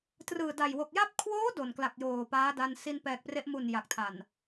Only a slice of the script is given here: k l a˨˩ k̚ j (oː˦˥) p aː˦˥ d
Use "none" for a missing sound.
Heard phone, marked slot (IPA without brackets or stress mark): oː˨˩